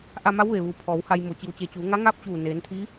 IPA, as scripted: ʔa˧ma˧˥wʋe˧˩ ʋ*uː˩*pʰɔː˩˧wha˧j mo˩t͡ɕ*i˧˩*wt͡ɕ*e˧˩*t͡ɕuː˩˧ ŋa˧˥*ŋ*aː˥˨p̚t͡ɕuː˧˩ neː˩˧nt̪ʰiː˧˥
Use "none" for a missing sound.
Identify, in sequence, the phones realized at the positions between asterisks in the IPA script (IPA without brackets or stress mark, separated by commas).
uː˩, i˩, e˧˩, ŋ